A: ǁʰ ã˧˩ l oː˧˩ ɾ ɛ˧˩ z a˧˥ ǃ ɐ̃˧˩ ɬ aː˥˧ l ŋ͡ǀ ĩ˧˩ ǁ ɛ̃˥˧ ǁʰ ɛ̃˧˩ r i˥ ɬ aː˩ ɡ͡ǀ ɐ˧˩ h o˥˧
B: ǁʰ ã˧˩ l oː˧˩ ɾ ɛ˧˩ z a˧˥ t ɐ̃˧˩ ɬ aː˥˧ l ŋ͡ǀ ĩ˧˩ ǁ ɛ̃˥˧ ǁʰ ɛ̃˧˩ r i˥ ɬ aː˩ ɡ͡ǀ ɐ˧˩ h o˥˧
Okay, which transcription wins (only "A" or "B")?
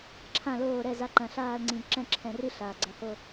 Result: A